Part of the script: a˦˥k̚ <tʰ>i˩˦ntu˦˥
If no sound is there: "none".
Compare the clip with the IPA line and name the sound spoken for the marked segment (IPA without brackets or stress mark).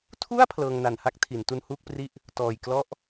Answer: tʰ